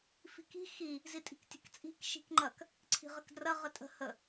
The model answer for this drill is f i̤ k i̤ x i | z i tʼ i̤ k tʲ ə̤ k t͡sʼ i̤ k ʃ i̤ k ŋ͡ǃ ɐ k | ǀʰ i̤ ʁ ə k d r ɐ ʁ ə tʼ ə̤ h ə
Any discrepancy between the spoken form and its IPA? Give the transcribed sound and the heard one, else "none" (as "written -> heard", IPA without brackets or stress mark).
none